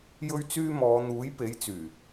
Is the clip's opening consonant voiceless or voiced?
voiced